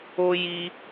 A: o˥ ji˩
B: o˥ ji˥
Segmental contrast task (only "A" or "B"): B